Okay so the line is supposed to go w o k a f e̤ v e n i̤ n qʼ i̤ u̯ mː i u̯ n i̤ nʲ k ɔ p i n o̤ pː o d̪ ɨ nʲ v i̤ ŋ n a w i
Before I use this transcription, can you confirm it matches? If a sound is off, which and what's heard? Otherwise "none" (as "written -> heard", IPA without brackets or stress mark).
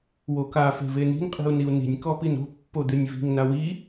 mː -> n